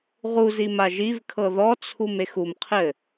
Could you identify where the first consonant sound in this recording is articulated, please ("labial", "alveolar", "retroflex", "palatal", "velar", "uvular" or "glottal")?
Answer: uvular